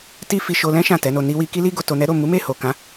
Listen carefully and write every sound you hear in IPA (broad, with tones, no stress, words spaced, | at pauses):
ti˦fi˧ʃo˧ lɛ̃˦ ʃã˦˨tɛ˨˦no˧ ni˧wi˧ ki˦li˦ɡo˧ to˧nɛ˦ ɾo˦˨ mu˨˦me˦˨ho˨kã˨˦